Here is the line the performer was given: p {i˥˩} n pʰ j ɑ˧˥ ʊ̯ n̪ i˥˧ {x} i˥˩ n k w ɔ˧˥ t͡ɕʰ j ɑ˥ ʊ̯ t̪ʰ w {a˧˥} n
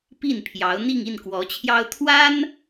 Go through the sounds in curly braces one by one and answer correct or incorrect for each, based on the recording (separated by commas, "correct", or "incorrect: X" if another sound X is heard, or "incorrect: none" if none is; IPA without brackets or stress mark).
correct, incorrect: ŋ, incorrect: a˥